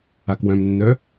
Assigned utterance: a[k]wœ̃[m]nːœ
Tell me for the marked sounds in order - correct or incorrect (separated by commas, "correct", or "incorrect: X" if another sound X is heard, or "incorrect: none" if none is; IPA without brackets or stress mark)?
correct, correct